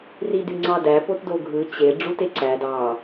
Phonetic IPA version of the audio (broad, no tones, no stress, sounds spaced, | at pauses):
r i d y ŋ͡ǀ ɑ d æ p o t d o ɡʱ ɯ t͡ɕ e ɖ͡ʐ u t e ǀ æ d ɑ